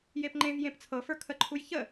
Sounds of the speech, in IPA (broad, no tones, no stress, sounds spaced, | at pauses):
j e p ŋ͡ǃ ẽ v j ẽ p t͡sʰ ɤ f ə˞ kʰ ə ǃʰ u j ç ə